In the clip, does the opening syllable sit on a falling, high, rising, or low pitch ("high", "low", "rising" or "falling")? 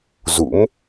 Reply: rising